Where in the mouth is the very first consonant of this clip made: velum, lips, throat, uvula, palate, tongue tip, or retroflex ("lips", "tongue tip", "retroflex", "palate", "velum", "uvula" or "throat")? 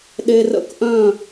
tongue tip